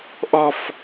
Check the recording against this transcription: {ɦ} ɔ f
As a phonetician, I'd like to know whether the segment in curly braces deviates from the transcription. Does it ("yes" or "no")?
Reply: yes